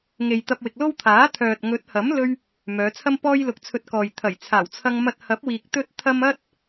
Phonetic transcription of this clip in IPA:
ŋ e˨ j t̪ ɐ˧ p̚ w ɪ˨ k̚ l o˥ w t̪ʰ aː˨˥ t̪ʰ œː˨ t̚ ŋ ɵ˨˥ t̚ h ɐ˨˥ m l ɵ˧ ɥ | m œː˨˧ t͡sʰ ɐ˥ m p ɔː˥ j l ʊ˧ k̚ t͡sʰ ɵ˧ t̚ k ɔː˨ j t̪ʰ ɐ˨˩ j t͡sʰ aː˨˩ w t͡sʰ ɐ˧ ŋ m ɐ˧ t̚ h ɐ˨˥ p̚ w iː˨ k̚ t̪ ɵ˥ t̚ t̪ʰ ɐ˥ m ɐ˥ t̚

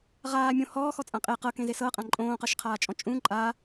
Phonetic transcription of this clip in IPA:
ʁ aː mʲ õ h ɔː x ɔ t͡sʼ ã qʼ e q ɤ k ẽ z e s ɤ qʼ ã ǃʼ õː q ɤ ʃ qʰ aː t͡ʃʼ ɔ̃ t͡ʃʼ ũ ǃʼ a

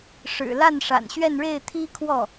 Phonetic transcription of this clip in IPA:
ʂ ɻ̩˨˩ l a˥˩ n ʂ a̰˨˩ n ɕ ɥ ɛ˥˧ n ɻ e˥˩ ɪ̯ t̪ʰ i˥ kʰ w ɔ˥˩

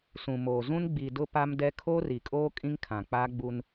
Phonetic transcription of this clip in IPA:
s ũ˨ m oː˨ z ũ˦ n ɡ͡b i˨ d ʊ˦ p a˦ m d ɛ˦ kʰ oː˦ r i˨ kʼ oː˦ kʼ ĩ˦ ŋ kʰ ã˨ k͡p aː˦ ɡ͡b u˦ n

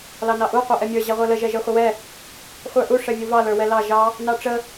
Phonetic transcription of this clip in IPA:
l ɑ n ɑ ʔ u qʷ ɑ ʔ ɛ mʲ ə˞ ʑ ɛ ʁʷ ə˞ l ə ʒ ɛ ʒ ə˞ χʷ ə w ɛ | χʷ ə˞ ʔ u ʂ ɛ vʲ u v ɑ l ə˞ w ɛ l ɑ ʒ ɑ | n ɑ ʈ͡ʂ ə

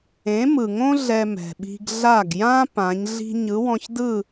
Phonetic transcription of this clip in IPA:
ẽ˩˥ m ɯ˩ ŋ õ˥ ɮ ɛ˧ m ɛ̤˩ ɓ i̤˧ ɡ ɮ a˥˩ ɡ j ã˥ p ã˩˥ ɲ ɮ i̤˥ ɲ ɯ˩˥ w ɔ̃˧ ç d ɯ˥˩

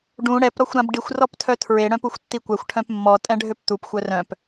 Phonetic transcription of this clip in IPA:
ɖ ũ ɽ ɛ p ɾ ɔ xʷ ɾ ã b ɖ i xʷ r ɔ p tʰ œ tʰ ɹ e ɽ œ̃ p u xʷ tː i kʷ ɛ xʷ ʈʰ œ̃ p mː ɔ tʼ ɛ̃ ɖʱ ø p t̪ u p xʷ œ r œ̃ p

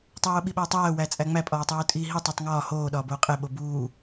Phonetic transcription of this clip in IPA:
tˤ oː ɓ i ɓ æ tˤ æː w æ t͡sʼ æ ŋ͡m æ pʼ ɒː tˤ uː tʼ iː ɦ i tˤ o tˤ ŋ ɒː h oː ɗ ɒː b oː qʼ e ɓ o b uː

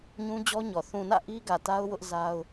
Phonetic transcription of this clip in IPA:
ɲ ũ˦ d͡ʑ ɔ˦ ɲ ɔ˨ θ ũ˨ n ä̰˦˨ ʔ i˦ ɡ ä˨ t a˦ ʊ̯ w ʊ˦ ʔ z a˦ ʊ̯

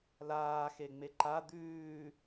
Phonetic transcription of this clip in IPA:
l aː x e ŋ͡m e ǃ a d̪ ʉː

